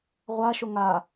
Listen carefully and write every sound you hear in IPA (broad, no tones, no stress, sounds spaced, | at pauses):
ʁʷ a ʃ o ŋ a